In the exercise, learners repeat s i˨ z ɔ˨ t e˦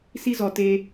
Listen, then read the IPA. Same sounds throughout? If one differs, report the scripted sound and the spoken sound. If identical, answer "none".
i˨ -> i˦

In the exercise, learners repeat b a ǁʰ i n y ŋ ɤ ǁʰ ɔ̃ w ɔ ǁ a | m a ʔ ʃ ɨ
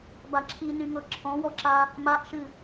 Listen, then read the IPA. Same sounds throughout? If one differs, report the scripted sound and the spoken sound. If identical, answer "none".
none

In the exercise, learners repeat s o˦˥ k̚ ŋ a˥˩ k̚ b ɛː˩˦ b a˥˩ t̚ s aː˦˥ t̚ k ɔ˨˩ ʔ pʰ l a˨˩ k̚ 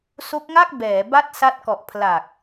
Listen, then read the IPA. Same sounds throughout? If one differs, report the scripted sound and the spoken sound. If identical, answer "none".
aː˦˥ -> a˦˥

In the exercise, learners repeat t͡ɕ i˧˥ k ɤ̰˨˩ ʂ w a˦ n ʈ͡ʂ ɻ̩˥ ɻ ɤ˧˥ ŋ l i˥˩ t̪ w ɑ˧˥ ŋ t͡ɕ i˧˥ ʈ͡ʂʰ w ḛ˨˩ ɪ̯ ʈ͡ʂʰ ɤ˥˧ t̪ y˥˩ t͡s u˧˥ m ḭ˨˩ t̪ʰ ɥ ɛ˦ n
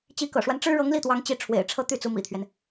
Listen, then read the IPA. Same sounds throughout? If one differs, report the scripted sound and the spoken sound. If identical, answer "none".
none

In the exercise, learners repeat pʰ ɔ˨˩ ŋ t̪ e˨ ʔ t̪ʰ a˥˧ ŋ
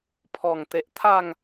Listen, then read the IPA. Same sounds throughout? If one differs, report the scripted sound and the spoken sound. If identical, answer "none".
none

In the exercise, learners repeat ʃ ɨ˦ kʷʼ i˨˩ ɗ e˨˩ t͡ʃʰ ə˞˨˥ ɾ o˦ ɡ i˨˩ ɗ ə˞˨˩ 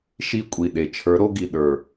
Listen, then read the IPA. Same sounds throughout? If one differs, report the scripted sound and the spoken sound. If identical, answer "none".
ɨ˦ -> i˦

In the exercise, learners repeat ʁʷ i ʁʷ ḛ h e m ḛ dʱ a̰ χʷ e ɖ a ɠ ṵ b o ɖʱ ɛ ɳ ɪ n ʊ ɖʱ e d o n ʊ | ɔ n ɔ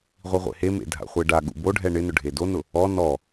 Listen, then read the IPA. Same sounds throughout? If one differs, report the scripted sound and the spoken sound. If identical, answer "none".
none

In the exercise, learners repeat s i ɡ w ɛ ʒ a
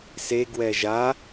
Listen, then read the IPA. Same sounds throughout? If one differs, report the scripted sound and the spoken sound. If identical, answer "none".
i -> e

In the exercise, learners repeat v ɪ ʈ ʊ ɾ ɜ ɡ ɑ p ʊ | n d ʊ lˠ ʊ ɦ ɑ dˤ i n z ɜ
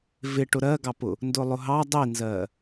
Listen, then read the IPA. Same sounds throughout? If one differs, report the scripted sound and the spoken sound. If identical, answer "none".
none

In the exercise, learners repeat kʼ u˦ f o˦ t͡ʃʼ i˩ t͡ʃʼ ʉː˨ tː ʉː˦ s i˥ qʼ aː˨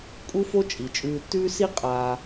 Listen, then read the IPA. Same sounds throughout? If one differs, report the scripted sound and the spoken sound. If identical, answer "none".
none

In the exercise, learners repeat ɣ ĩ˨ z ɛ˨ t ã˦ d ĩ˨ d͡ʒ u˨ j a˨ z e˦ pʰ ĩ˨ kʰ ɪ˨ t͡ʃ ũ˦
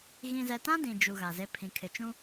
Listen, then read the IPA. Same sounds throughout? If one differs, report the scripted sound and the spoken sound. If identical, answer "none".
j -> ɣ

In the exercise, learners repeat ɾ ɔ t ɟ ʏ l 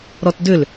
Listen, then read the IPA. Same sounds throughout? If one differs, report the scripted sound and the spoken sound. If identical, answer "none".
ɟ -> d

